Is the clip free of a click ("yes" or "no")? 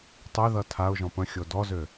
yes